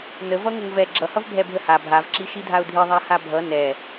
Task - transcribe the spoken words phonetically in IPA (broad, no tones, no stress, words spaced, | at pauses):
nəvʌ ŋəŋvɛ ɡ͡ǁʌhʌv bʱɛbʱəha bʱavǁi ʃidʱaʊ̯dʱi ðˤahabʱʌ nɛ